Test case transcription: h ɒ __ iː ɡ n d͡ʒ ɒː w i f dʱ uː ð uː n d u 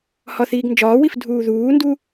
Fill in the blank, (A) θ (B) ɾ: A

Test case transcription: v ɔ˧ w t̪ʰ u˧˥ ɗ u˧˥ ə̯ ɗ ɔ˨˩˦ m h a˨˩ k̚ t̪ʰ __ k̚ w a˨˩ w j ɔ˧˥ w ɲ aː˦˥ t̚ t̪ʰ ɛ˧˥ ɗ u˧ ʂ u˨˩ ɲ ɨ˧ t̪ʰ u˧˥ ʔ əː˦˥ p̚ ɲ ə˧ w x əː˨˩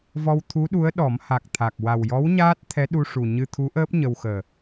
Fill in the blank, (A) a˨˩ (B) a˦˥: A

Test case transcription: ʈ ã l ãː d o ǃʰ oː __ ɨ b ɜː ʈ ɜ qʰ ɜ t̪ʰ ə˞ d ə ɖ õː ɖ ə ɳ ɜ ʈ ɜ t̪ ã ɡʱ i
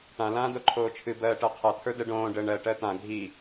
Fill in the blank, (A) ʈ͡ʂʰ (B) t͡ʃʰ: B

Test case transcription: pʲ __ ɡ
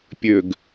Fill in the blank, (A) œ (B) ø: B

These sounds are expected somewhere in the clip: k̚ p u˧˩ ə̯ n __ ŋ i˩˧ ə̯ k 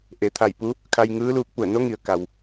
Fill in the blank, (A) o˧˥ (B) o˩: A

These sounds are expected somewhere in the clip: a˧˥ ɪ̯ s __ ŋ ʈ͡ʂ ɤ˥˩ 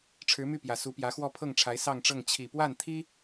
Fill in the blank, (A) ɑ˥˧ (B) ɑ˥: A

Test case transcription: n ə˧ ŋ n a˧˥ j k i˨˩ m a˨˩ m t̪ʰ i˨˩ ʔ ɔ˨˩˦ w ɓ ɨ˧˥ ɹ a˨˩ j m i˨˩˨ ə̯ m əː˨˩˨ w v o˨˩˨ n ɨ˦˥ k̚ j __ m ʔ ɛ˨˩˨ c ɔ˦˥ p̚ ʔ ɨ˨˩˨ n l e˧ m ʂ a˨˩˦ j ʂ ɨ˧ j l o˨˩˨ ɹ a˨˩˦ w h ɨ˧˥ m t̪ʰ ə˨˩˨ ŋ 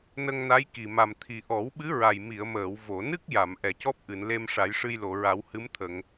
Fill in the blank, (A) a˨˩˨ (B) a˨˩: A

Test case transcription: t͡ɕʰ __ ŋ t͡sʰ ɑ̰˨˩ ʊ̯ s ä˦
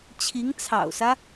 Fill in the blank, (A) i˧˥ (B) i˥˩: A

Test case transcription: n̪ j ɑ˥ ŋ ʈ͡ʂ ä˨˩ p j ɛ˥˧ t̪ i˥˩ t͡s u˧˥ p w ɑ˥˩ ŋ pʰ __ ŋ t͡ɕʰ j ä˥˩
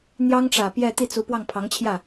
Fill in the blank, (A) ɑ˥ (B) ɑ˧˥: B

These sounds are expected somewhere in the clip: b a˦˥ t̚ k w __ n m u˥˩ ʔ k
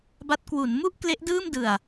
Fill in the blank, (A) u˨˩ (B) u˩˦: B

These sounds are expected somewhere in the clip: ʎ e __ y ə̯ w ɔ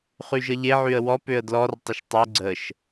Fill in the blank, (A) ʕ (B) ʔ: A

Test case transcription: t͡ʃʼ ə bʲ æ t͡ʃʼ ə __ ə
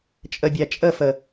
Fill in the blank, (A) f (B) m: A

